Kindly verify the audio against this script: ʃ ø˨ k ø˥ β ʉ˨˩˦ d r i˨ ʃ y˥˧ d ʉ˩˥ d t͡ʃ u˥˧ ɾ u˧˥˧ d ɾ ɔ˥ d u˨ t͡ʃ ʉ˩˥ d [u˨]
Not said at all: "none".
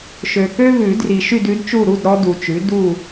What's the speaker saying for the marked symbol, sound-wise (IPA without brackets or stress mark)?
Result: u˥˧